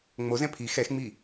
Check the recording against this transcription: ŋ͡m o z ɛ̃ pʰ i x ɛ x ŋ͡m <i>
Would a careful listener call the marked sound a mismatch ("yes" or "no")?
no